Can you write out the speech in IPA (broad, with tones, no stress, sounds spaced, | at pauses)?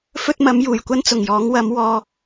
f ɵ˥ t̚ m ɐ˨˥ m j uː˨˩ j kʷ ɐ˥ n t͡s ʊ˨˩ ŋ j ɔː˨˥ ŋ w ɐ˨˥ m w ɔː˧